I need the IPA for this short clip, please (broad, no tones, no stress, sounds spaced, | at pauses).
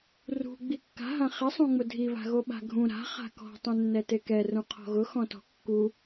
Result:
r ṳ ɡ͡b i kː a̤ ɦ ã χ ɪ sˤ ũ ŋ͡m ʊ dʱ i β a̤ ɣ o ɓ a̤ ɡʱ ũ ɾ a̤ χ a̤ k ɔ̤ tˤ ũ nː ɛ t e k ɛ r ũ qʰ ɔ̤ ɣ ʊ x ɔ̃ t ɔ̤ kː u